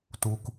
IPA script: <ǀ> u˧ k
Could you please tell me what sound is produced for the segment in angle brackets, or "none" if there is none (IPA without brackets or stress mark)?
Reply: t